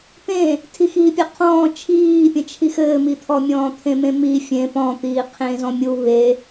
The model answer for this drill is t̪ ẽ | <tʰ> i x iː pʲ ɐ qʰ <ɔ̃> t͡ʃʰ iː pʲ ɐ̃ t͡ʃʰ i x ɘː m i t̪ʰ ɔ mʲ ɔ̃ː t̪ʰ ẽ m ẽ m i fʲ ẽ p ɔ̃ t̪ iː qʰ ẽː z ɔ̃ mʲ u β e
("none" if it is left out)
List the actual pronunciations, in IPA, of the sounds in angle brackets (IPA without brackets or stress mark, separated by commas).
tʰ, ɔ̃ː